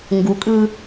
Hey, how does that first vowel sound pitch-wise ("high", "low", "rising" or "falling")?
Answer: rising